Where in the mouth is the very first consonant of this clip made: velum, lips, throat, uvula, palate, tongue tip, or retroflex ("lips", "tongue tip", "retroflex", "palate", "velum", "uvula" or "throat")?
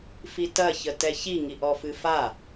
lips